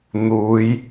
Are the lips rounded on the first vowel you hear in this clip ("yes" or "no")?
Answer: yes